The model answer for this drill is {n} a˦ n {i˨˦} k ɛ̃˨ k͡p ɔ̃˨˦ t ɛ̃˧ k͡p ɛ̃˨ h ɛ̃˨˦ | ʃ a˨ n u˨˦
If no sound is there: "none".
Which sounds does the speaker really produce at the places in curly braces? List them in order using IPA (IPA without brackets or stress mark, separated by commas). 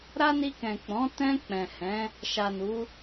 ɾ, i˧